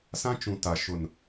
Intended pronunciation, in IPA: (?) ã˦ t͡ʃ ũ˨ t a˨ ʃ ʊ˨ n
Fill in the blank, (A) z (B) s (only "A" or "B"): B